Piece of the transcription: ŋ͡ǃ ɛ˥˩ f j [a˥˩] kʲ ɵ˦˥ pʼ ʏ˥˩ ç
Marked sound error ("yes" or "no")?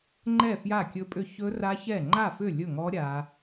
no